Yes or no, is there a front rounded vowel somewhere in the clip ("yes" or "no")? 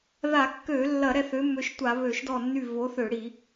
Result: yes